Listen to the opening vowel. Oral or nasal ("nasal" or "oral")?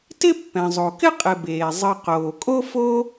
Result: oral